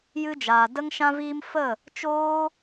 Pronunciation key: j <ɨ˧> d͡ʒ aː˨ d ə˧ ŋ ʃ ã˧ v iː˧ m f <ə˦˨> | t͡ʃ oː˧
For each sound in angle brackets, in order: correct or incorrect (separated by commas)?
correct, correct